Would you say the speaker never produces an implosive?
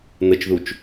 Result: yes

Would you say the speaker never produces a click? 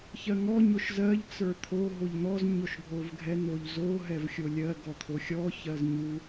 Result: yes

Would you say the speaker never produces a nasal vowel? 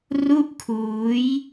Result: yes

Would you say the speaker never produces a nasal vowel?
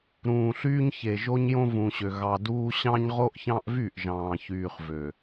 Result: no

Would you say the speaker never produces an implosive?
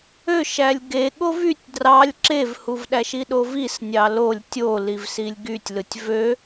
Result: no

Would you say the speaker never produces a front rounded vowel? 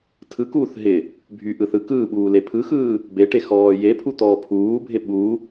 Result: no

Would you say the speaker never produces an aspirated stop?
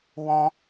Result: yes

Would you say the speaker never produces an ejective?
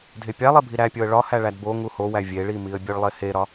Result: yes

